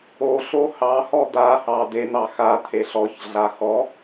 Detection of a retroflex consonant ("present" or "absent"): absent